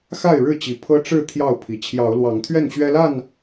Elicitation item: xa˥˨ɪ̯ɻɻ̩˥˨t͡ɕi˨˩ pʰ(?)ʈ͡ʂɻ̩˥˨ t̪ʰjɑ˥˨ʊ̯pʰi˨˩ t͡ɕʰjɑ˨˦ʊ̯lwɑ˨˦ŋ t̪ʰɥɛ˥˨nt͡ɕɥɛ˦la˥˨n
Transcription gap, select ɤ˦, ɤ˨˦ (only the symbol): ɤ˦